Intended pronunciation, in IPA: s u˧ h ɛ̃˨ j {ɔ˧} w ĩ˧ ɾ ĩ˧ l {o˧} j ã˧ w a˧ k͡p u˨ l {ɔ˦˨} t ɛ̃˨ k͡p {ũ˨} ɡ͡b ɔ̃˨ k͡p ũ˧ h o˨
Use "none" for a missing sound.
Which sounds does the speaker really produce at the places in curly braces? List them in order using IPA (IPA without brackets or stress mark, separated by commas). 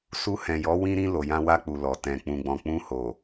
ɔ˨˦, o˨, ɔ˨, ũ˨